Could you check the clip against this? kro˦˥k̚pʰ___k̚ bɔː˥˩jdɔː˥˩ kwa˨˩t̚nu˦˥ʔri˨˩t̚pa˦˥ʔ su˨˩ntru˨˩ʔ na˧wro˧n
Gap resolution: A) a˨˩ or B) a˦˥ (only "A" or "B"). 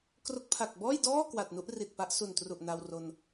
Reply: A